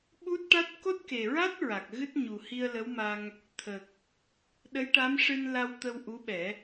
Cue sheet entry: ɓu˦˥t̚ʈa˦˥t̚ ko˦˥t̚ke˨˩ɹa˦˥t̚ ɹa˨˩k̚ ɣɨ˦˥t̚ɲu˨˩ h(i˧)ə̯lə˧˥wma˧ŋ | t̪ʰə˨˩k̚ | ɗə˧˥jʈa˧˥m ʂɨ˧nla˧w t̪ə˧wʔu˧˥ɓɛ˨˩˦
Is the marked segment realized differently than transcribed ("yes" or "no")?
no